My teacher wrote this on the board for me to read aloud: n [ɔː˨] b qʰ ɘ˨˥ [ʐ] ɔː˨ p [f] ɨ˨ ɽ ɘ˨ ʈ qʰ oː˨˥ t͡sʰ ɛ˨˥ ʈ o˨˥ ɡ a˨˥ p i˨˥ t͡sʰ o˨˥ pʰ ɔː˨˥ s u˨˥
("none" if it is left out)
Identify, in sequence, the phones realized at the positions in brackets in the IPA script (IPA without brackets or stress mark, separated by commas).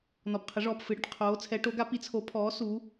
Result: ɔ˨, ʐ, f